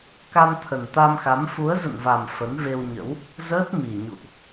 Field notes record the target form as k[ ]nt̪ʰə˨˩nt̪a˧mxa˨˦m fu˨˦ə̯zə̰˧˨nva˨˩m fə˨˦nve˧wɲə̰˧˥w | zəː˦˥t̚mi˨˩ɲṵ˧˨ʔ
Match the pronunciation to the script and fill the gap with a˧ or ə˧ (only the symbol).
a˧